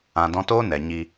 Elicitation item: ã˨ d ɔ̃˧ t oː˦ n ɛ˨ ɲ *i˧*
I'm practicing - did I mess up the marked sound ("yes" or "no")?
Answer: no